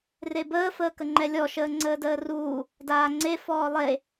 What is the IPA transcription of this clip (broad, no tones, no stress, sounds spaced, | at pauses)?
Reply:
r e b əː f əː k ə ŋ͡ǃ ɛ lʲ ɔ ʃ əː ŋ͡ǀ əː d əː r uː | d aː ŋ͡ǀ e f ɔː lˠ e